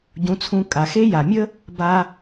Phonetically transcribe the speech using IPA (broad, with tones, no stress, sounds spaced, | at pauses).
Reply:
ɟ ũ˨˦ t͡sʰ ũ˧ kʼ a˨ x e˦ j a˨ mʲ ə˦ | b a˧